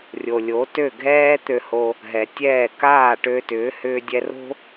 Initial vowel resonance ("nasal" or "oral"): oral